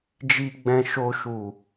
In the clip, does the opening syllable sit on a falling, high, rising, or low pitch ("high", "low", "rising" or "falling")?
low